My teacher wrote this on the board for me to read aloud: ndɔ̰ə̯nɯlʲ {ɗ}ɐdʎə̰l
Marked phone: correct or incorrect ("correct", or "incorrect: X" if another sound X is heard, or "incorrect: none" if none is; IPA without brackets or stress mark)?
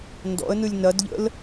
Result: incorrect: n